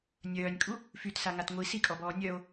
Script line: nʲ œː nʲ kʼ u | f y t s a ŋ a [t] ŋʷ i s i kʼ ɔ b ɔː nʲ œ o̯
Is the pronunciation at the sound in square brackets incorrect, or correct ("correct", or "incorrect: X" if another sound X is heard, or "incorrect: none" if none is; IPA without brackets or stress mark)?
correct